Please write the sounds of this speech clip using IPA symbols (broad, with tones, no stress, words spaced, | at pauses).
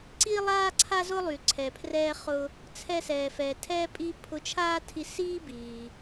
ǀiː˧lˠaː˧ ǀʰa˧zʊ˧lˠy˩ ǀʰɛ˩pʰrɛː˧χʊ˧ | t͡sʰɛ˧sɛː˩fɛː˩ tʰɛː˥pʼiː˥ pʰʊ˧t͡ʃʰaː˥tʰi˧ siː˥biː˩